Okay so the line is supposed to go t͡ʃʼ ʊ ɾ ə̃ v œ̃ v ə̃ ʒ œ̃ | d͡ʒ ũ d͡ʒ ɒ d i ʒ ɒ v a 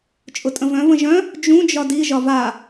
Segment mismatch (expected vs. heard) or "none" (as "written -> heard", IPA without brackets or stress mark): ɾ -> tʼ